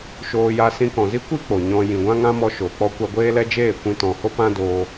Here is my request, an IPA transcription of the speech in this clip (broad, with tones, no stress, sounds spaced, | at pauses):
ʃ oː˧ j a˧ s ĩ˧ k ɔ̃˨ z i˦ kʷ i˦ k͡p o˨ ɲ ɔ̃˧ j ĩ˨ ɡʷ ã˦ ŋ ã˦ m ɔ˧ ʃ oː˨ k͡p ɔ˦ kʷ a˧ ɡʷ eː˦ l ɛ˦ d͡ʒ eː˦˨ kʷ ĩ˧ t ɔ̃˨ h o˦ p ã˦ d oː˧